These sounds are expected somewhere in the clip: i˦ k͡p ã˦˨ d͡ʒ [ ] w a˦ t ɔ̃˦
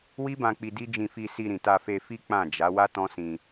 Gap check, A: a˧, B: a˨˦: B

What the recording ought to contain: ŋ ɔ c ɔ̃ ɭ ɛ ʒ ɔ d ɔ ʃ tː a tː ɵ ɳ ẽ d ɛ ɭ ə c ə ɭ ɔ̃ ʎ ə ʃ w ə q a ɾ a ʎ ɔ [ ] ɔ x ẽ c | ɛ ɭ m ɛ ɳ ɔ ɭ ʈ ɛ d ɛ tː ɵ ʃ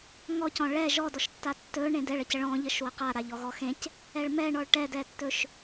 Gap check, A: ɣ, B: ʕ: A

